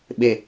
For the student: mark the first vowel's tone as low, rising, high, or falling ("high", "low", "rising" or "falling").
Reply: low